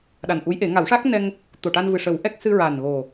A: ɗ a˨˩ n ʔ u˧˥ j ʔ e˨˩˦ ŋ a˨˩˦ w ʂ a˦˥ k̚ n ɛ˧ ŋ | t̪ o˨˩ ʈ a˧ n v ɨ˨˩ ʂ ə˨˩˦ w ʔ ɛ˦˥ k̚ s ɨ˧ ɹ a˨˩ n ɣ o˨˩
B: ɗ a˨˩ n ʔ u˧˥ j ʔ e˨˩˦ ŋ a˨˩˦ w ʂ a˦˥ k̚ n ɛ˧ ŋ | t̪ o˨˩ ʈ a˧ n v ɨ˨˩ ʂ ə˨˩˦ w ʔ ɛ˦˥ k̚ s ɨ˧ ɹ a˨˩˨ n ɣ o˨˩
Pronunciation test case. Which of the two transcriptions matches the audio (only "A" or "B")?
A